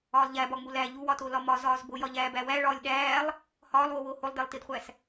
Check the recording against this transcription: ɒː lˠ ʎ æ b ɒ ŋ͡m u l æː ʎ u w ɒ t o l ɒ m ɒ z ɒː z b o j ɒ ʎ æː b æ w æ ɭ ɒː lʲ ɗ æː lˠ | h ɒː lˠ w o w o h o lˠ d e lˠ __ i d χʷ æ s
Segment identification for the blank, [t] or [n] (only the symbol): t